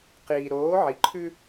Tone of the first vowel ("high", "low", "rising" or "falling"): low